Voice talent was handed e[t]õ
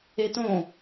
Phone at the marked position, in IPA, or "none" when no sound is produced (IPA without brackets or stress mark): t